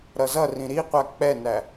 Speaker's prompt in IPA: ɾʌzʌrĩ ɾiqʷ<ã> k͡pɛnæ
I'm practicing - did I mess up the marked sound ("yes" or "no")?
yes